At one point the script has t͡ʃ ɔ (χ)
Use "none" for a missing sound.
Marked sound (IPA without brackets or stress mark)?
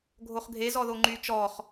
χ